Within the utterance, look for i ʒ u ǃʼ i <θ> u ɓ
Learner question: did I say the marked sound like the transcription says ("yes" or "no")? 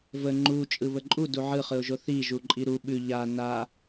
no